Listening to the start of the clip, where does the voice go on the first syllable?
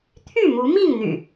falling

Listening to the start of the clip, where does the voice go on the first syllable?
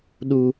high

